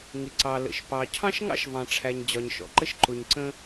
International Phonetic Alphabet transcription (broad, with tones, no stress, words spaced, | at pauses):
ŋɪ˩ǀɑ˩ lə̰˩ʃpɑ˩ cʰɑ̃˥ʃŋɑ̰˥ʃvɑ̃˩ʈ͡ʂʰæ˩ɲ d͡ʑɒ˩ɲʃɔ̰˩ǃə˥ʃ ǃʊ˩ɲ ǀə̃˥